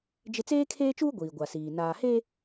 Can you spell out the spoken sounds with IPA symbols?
d͡ʒ ɪ˦ t͡s eː˦ kʰ eː˦ t͡ʃ uː˦ ɡʷ iː˨ ɡʷ a˨ s iː˨ n aː˨ h e˦

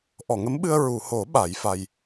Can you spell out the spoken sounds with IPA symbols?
ʔ ɔ˨˩˨ ŋ ə˧˥ m ɓ ɨ˧ ə̯ ɹ u˨˩˨ h o˨˩˦ ɓ a˨˩˦ j f a˧ j

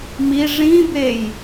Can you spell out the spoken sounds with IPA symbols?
m i ʐ ĩ b e j

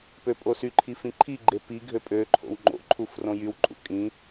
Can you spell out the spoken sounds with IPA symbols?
p ø pʼ o s y ǃʰ i f ĩ ǃʰ i ɡ͡ǃ e p i ɡʱ ø pʼ ø ǃʰ o̰ w ŋ͡ǃ o̰ ǃʰ u f r õ j y w ǃʼ ṵ kʼ ĩ

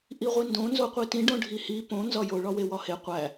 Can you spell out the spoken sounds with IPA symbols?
ʔ i ʁʷ i n d õ n z o qʷ i t ĩ ɖ õ ɖʱ i h i p õ n z ɒ j o ɭ ɒ w e w ɒ h e qʷ æ

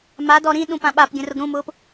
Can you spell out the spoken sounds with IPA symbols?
m a d ɔ ɾ ĩ ɗ ũ p ã ɓ a p ɡʲ ə̃ r ʊ ɡ ɾ ũ m ʊː p

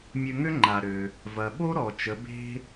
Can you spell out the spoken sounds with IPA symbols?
mʲ ø˧ ŋ ø˥ ŋ͡ǃ a˩ ɾ ø˩ | v ɐ˩ ɓ o˥ ɾ ɔ˩ t͡ʃ ə˩˧ b e̤˥

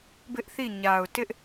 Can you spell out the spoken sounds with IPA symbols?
b ɪ˦ ʔ θ i˦˨ ɲ a˨ ʊ̯ t ɪ˦ ʔ

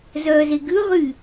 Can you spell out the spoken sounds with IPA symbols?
z œː z e ɡ ʉ ʁ y

